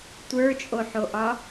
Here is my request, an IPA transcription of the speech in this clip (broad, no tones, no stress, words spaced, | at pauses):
tʷə˞t͡ʃʼoħoʔɒ